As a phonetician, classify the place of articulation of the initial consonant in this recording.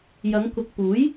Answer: palatal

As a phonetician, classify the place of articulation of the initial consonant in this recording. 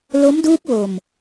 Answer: alveolar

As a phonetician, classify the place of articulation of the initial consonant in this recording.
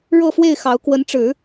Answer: retroflex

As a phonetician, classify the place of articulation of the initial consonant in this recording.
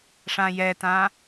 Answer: retroflex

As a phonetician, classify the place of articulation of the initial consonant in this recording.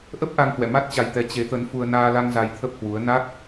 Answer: glottal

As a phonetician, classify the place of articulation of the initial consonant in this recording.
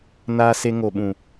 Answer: alveolar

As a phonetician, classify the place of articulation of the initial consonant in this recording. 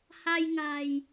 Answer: glottal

